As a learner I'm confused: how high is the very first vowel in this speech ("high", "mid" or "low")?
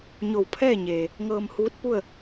mid